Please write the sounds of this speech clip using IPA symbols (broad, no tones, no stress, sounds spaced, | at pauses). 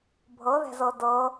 bʱ ɤ ð ɛ̤ z ɤ d ɤ